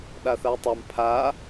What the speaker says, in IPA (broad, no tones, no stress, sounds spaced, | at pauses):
ɗ a θ a j tˤ a m pʰ a